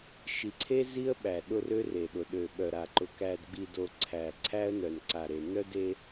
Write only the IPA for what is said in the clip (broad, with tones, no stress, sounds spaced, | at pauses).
ʃ i˨ ǀʰ e˦ z i˦ ə̯ ɓ æ˨ ɗ ʊ˦ r ø˦ r e˨ ɗ ʊ˨ ɗ ø˨ ɓ œ˨ ɾ a˨ ǃ ʊ˨ k æ˨ d ɡ͡b i˨ d o˨ ǀʰ æ˨ ǀʰ æ˦ ə̯ n œ˨ n ǀ a˨ ɾ e˨ n œ˦ d e˦